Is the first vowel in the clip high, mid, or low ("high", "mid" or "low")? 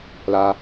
low